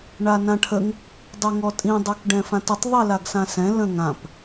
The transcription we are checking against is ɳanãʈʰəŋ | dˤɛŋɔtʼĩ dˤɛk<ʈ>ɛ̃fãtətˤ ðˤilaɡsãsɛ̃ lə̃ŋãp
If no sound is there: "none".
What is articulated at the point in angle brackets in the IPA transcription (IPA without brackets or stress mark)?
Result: ɖ